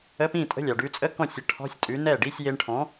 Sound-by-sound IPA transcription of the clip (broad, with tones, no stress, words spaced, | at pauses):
ə˧˥˧pĩ˥˩tʼə̤˧˥˧lʲɑ˩ ɖʉ˧t͡sʼə˧˥˧ kɔ̃˥˩sʲ ə˨˥ ʈʰɔ̤˧˥˧sʲ tʼʉ˨˥nɛ˥˩ ɖi˧˥˧sʲje˧ɳʈʰɔ̃˨˥